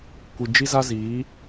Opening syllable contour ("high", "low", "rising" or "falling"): low